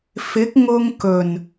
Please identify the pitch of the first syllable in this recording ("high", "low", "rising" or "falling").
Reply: rising